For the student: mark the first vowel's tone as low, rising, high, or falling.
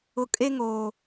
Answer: low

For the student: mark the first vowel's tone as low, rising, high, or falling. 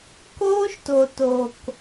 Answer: high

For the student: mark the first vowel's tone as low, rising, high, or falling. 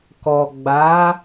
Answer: low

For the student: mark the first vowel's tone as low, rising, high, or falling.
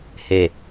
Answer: low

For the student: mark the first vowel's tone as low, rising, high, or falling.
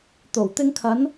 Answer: low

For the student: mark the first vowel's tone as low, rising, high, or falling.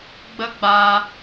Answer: high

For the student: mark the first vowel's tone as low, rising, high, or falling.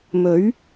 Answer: rising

